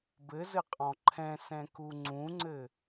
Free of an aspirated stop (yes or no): no